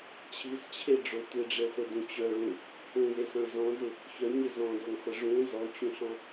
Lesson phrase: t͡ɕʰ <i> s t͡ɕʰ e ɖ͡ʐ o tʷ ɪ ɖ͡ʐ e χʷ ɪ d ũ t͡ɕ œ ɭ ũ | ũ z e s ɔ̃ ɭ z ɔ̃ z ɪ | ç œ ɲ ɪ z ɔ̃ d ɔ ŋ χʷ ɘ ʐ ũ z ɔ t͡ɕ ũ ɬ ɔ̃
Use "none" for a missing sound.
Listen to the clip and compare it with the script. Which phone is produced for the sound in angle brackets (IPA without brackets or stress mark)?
i